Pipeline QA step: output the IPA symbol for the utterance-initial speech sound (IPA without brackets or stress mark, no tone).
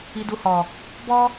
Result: i